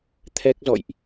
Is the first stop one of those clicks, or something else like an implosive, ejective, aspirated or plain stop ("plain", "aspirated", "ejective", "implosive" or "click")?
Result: aspirated